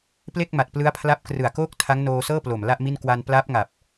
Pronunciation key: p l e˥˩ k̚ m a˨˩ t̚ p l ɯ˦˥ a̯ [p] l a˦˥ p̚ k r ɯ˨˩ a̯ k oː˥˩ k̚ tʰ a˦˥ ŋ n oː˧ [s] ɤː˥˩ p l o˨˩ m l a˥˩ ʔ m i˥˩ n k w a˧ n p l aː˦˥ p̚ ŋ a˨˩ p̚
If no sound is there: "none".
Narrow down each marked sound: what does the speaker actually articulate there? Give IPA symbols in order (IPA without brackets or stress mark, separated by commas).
pʰ, s